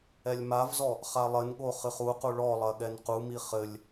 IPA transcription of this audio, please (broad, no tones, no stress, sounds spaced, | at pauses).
ɛ lʲ m a v z ɔ | χ a lˠ ɘ n ɠ o χ ɨ χ u q u ɭ ɔ lˠ ɐ ɠ ɛ n q u m i χ ɘ lʲ